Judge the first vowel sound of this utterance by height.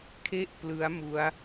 mid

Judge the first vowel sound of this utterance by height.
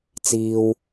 high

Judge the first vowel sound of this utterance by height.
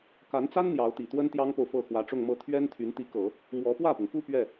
low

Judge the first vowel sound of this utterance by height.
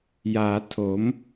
low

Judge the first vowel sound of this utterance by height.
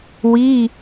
high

